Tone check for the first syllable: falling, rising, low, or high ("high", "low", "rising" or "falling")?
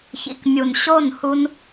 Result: low